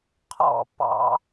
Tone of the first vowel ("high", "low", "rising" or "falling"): falling